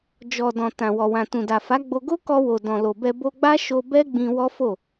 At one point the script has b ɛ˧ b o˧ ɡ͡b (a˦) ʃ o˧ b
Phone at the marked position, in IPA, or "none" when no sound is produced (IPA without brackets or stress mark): a˦